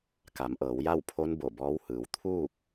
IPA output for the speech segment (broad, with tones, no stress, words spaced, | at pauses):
ka˩˧mʔɤː˩˧w ja˥˨w pʰo˧˥n bo˧˩bɔː˧˥w hɯː˩˧w t̪ʰuː˥˨k̚